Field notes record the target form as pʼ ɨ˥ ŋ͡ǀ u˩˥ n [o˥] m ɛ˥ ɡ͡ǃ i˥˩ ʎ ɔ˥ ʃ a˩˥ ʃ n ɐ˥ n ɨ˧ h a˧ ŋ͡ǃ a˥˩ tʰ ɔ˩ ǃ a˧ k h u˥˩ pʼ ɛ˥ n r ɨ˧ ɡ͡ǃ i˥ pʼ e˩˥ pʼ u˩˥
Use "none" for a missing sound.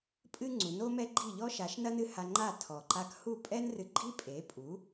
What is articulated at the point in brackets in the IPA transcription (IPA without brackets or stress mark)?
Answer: o˥